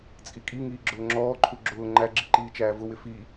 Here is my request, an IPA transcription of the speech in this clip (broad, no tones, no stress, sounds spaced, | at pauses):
t͡sʼ i kʼ i ŋ iː ɡ͡ǁ ʊː ŋ͡ǁ ɔː ǃʰ u ɡ͡ǁ ʊː ŋ͡ǃ æ ɡ͡ǁ i ǃ iː t͡ʃ æː v ʊ w ɪ f i